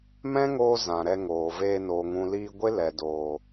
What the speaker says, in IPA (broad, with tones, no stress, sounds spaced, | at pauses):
m ɛ̃˦ ŋ oː˧ z ã˨ ɾ ɛ˧ ŋ oː˨ v eː˧ n oː˨ ŋ ũ˨ l iː˧ ɡʷ e˦ l ɛ˨ d oː˨